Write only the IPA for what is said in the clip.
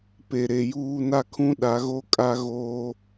p e˨ ɾ e˨ j uː˦ n a˦ kʰ ũ˦ ɗ a˨˦ ɣ o˦ kʼ a˦ ɣ oː˦

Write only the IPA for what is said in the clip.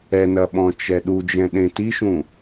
ɛ n ɐ ɓ ɔ̃ t͡ʃ ɛ ɗ u d͡ʒ ɛ̃ ɗ ẽ t i ʃ ũ

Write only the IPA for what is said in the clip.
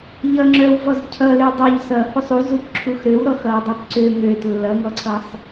ʎ ʌ ŋ͡ǁ œ w v ɔ z cʰ ʌ l ø dˤ ø ʎ s ʌ h u sˤ u z u p ǁʰ u x ɾ ø w ɾ ɔ x ʌ w dˤ u p ǀ ø ŋ ø t lː ʌ ŋ ɔ ǀʰ ʌ sˤ

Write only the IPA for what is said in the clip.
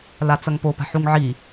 l a t͡s ɐ ŋ p o p a̤ ħ u ŋ ʕ i

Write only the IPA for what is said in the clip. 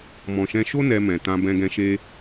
m ɔ̃˨ ʃ ɛ̃˧ ʃ o˦ n ɛ˧ m ɛ̃˨ t ã˧ b ɛ̃˧ ɡ ɛ̃˧ ʃ e˦

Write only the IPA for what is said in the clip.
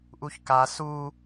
ʔ u ç k a s u

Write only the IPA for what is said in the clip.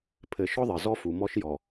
pʰ ɘ˨ ʃ ɔ˦ ðˤ ɘ˨ z ɔ˦ f u˨ m ɔ˦ ʃ j ɔ˨

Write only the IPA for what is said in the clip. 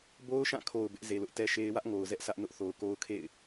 b o˦ ʊ̯ ʃ ã˦˨ kʰ o˨ ʊ̯ b ɪ˦ ʔ z e˨ l ʊ˦ ʔ t ɛ˦ ʃ e˦ ɪ̯ w ä˦ ʔ ŋ o˨ ʊ̯ z ɛ˦ ʔ sʰ ä˦ ʔ n ʊ˦ ʔ θ o˨ ʊ̯ k o˦ ʊ̯ kʰ ḛ˦˨ ɪ̯

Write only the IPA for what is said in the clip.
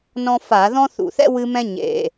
n ɔ̃˦ f a˧˩˧ ð ɔ̃˦ θ ṵ˧˩˧ θ ɛ̰˦ w ɨ˦ m ɛ̃˦ ɲ ḛ˨˩

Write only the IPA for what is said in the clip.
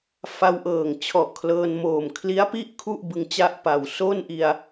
f a˧ w ʔ ɤː˨˩ ŋ t͡ɕʰ ɔ˨˩ ʔ kʰ l ɤː˧ n m oː˨˩ m kʰ l i˦˥ a̯ p i˥˩ ʔ kʰ u˥˩ ʔ b ɯ˧ ŋ t͡ɕ a˥˩ ʔ p a˨˩ w s o˥˩ n ʔ i˧ a̯

